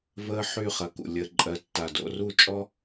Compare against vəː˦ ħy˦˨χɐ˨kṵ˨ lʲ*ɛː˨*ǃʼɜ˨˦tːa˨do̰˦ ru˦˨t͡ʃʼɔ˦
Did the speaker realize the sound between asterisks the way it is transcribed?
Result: no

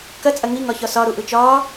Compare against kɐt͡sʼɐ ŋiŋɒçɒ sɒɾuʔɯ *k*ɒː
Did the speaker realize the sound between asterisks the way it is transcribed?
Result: no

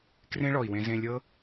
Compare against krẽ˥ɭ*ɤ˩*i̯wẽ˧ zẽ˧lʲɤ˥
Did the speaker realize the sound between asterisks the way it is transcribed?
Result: no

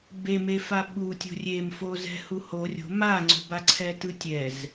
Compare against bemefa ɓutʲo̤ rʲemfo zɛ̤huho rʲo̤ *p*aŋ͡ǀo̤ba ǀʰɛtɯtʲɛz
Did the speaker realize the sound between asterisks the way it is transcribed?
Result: no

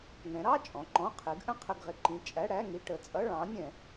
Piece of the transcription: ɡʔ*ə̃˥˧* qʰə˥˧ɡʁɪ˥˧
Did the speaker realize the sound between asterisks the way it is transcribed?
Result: yes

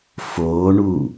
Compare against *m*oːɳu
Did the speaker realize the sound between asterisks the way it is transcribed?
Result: no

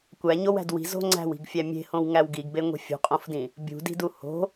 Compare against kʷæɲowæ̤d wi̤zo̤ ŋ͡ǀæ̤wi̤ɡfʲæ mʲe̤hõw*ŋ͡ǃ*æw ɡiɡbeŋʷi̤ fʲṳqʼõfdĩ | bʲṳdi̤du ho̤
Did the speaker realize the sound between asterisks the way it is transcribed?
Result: no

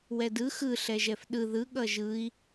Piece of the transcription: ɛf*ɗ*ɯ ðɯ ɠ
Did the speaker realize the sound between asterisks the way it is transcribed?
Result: yes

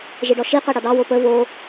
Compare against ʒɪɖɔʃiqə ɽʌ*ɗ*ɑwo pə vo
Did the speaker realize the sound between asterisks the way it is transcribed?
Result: no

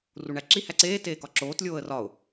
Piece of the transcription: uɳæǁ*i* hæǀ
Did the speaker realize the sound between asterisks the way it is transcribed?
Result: yes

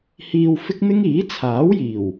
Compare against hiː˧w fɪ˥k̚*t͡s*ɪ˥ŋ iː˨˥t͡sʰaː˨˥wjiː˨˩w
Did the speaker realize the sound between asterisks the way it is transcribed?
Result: no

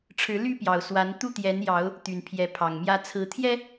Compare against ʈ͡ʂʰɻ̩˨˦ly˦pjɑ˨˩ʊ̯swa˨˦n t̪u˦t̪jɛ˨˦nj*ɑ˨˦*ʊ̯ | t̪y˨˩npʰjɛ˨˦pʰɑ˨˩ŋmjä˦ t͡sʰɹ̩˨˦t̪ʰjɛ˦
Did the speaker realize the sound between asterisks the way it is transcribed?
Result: yes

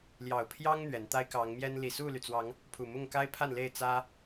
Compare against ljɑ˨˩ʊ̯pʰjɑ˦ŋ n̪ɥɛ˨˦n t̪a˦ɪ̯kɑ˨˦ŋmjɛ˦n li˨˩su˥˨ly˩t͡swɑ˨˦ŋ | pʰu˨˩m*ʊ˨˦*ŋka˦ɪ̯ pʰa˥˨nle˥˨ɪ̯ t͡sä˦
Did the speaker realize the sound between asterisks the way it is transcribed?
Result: no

